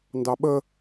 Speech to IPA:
n d ɑ ɓ ə

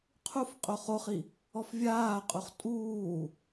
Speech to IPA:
qʰ u f qʼ o χ o χ i | ɔ f vʲ aː qʼ u χ tʼ uː

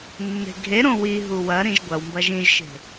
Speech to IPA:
nː e̤ ɡʱ e ɾ õ w i ɦ u w ɐ ɾ ĩ ʒ ɡʷ ɐ w m b ɐ ʒ ĩ ʒ ʃ e̤

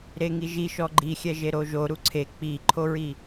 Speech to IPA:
ɾ e ŋ i ʒ i ʃ ɔ ɡ͡ǃ i xʲ ɛ ʒ e ɾ o ʒ o ɾ u ǀʰ e k͡p i ǃʰ o ɹ i

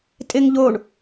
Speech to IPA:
tʼ ɪ ŋ ʎ o ɳ

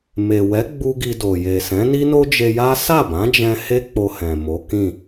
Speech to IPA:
m e˨ w ɛ˨˦ ɡ͡b u˧ ɡ i˧ d o˨ j e˨ s ɛ̃˨˦ n i˦ n o˦ d͡ʒ e˧ j a˦ s a˦˨ b ã˨˦ d͡ʒ ɛ̃˧ h e˦ k͡p o˧ h ɛ̃˨ m o˨˦ k ĩ˦˨

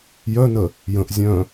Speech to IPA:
j œ n ə | j ə̃ ʔ zʲ œ̃

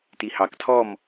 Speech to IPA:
t i h ɑ k tʰ ɔ m

